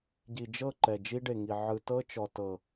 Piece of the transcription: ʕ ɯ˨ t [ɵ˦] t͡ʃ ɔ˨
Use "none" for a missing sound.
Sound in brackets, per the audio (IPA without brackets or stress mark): ɤ˦